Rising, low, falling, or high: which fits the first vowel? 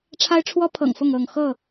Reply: high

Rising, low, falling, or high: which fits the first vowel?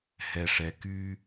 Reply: low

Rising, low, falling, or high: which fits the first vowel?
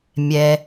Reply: low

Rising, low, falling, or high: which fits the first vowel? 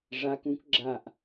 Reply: rising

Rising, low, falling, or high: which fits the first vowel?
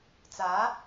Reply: rising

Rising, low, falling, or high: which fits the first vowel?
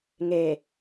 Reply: low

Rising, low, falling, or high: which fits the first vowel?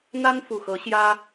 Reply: high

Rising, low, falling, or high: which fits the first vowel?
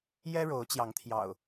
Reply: high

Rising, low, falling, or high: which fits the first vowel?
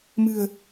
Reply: low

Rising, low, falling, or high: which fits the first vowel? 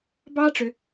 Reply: high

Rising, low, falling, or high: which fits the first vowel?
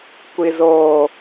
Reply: high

